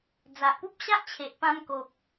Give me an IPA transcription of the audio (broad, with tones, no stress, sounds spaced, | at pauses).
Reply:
d͡z a˨ ʔ p u˦ p̚ ɕ a˦ ʔ t͡ɕʰ e˨ ʔ p ã˧ m k o˨ k̚